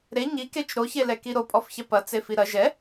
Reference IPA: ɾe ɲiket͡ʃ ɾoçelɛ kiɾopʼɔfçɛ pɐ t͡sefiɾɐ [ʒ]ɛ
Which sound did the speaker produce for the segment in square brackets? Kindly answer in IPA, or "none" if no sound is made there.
ʒ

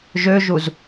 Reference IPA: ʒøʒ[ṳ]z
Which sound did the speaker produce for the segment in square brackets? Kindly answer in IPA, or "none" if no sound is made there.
u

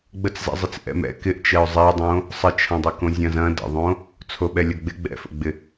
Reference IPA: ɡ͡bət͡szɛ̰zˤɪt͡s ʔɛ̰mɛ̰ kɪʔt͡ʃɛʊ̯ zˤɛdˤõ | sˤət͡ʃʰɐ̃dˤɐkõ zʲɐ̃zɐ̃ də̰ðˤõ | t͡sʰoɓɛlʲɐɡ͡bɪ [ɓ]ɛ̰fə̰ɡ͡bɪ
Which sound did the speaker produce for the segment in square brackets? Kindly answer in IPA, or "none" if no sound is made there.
ɡ͡b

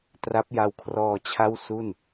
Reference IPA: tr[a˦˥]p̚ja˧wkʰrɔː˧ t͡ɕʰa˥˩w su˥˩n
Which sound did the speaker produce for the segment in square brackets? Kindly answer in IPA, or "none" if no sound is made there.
a˦˥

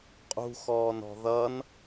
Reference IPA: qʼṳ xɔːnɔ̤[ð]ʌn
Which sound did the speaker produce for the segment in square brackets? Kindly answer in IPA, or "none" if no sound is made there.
ð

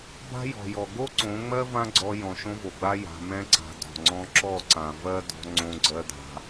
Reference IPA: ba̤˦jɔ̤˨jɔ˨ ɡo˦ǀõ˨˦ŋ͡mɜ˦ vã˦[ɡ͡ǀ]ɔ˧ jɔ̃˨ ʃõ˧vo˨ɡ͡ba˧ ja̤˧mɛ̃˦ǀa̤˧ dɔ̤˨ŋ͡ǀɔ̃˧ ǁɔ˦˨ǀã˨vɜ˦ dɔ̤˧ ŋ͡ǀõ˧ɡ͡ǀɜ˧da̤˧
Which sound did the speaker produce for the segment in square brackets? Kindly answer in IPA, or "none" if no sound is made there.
ɡ͡ǀ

